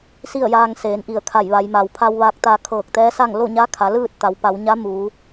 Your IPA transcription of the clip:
s i˥˨ ə̯ j aː˧ ŋ s eː˩˧ n ʔ i˧˩ ə̯ kʰ a˧˩ j ʋ a˩˧ j m a˩ w pʰ a˧ w ʋ a˧ k̚ t̪ a˧ kʰ ɤː˧˩ k̚ t̪ ɛː˧˥ s a˥˨ ŋ l o˥˨ ɲ a˧˥ kʰ a˩˧ l ɯː˥˨ t̚ t̪ a˩˧ w p a˩˧ w ɲ a˧˥ m uː˩˧

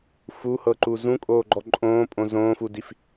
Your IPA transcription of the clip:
f u h ɤ ǃ u z ũ kʼ oː ɡ͡ǃ ɔ ǃʼ õː pʼ õ z õː f u d i f

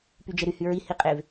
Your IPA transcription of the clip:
p y d͡ʒ e ɾ y h y ɹ i h i qʼ e v

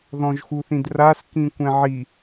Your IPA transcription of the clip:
ð ɔ̃ ʒ x u θ ĩ d r a s k ĩ kʷ ɛ̃ ʕ i

